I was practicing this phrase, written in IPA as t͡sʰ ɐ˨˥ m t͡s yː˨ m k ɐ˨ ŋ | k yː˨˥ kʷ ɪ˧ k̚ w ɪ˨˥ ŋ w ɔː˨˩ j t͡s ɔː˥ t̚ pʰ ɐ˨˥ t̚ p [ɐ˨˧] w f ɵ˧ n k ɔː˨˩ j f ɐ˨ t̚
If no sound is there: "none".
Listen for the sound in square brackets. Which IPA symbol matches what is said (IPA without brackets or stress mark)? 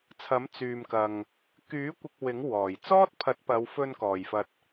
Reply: ɐ˨˧